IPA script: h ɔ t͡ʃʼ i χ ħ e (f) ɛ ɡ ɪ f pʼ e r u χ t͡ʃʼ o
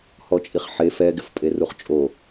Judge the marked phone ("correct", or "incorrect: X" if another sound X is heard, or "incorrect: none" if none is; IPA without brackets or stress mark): correct